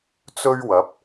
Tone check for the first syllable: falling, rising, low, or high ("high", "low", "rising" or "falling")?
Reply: high